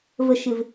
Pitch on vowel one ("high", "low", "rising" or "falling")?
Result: low